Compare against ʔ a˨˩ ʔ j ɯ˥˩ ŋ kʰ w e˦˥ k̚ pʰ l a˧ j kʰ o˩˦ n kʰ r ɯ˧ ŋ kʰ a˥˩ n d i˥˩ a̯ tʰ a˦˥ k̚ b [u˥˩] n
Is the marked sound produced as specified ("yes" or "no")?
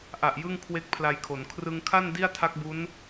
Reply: no